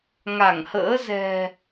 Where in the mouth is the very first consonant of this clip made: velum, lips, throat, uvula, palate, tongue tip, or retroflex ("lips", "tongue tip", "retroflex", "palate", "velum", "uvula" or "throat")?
velum